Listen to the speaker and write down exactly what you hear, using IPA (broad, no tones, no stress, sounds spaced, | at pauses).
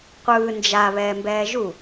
qʷ ɯː n d͡ʒ a β ɛː m b ɛː ʒ u